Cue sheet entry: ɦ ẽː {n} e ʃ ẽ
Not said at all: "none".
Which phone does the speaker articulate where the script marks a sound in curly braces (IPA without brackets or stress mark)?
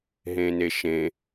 n